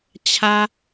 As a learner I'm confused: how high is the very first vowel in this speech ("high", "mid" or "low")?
low